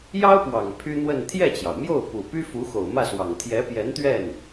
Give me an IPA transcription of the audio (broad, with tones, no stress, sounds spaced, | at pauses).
j ɑ˥ ʊ̯ p w ɑ˨˩ ŋ pʰ y˥ n̪ w ə˥˧ n t̪ʰ j ɛ˥˩ t͡ɕ j ɑ˩ ʊ̯ m j o˥˩ ʊ̯ p u˨˩ p y˥ f u˧˥ x o˨˩ ʊ̯ m ä˥˩ s w ɑ˨˩ ŋ t̪ʰ j ɛ˧˥ p j ɛ˧˥ n t̪ ɥ ɛ˥˩ n